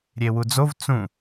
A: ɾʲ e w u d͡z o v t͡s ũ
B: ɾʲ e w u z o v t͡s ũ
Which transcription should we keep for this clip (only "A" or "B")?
A